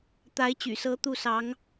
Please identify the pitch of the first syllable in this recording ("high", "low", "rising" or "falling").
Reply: rising